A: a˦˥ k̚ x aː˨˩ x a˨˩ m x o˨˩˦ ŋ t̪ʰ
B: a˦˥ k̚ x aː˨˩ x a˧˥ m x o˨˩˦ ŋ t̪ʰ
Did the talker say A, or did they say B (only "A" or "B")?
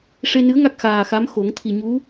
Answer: B